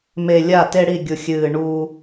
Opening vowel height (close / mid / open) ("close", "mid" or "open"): mid